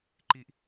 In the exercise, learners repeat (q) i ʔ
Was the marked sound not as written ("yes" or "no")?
yes